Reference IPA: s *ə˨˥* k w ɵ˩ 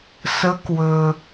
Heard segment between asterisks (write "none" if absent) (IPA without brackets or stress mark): ə˨˥